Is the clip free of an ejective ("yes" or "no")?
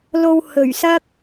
yes